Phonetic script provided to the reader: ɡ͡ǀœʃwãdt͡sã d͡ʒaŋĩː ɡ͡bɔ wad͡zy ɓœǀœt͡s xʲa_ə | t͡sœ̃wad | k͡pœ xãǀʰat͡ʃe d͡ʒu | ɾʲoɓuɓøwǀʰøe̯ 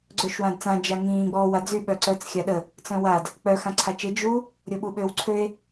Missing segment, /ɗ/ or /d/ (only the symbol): ɗ